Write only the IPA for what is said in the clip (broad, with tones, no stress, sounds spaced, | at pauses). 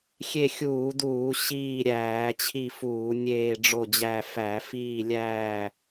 xʲ e˦˨ xʲ uː˧˩˧ d uː˧˩˧ ɕ iː˦˨ ɾʲ æː˧˩˧ t͡ɕʰ i˦˨ f uː˧˩˧ nʲ eː˦˨ ɖ͡ʐ o˦˨ d͡ʑ æ˦˨ f æ˧˩˧ f iː˦˨ lʲ æː˦˨